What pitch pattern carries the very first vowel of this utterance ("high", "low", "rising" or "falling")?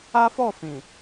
high